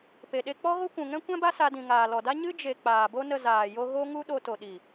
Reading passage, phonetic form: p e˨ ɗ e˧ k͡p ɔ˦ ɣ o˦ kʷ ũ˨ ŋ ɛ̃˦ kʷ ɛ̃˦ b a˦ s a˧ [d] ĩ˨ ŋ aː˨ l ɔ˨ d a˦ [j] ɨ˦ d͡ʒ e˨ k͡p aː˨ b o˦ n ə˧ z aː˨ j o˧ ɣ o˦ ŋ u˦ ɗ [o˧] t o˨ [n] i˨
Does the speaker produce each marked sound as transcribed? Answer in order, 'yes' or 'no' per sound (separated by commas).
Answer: yes, no, yes, no